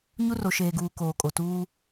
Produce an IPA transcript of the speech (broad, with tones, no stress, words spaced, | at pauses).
ɲu˦ro˨ʃeː˨ɡuː˨ koː˨kʼo˨ tuː˦